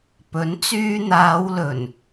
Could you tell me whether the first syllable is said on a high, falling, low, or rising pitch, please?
rising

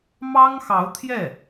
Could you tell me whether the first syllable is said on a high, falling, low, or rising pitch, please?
high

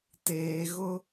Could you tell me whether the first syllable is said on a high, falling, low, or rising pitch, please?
low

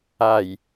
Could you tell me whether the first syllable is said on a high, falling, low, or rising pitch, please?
low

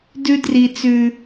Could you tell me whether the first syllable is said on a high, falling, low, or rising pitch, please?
high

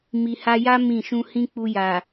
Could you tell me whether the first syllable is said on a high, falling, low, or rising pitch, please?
low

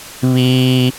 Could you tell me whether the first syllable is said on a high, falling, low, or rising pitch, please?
high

